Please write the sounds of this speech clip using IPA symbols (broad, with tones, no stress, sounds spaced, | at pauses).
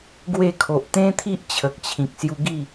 ɡ w e˧ kʰ o˨ ʔ t̪ ẽ˦ t̪ʰ i˦ ʔ t͡ɕʰ ə˨ k̚ t͡ɕʰ ĩ˨ k̚ s j u˧ ɡ i˥˧